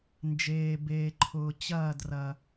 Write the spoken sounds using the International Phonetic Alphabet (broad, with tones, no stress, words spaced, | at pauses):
nd͡ʒeː˨beː˨ǃʰʊː˨ t͡ɕɐː˦˨drɐ˨